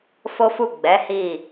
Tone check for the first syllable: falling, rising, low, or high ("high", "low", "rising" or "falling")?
high